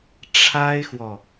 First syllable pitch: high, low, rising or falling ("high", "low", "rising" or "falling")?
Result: high